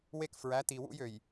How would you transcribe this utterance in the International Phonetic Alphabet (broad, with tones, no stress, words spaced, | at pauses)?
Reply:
we˦kfɹæ˨˦ti˨wṵ˦j ø˨j